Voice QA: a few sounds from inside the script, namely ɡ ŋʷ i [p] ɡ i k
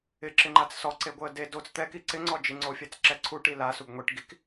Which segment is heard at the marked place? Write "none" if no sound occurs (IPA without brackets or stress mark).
ʈ